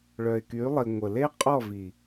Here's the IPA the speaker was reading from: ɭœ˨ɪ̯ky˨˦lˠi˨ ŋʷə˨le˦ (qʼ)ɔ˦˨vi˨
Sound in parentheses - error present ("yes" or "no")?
no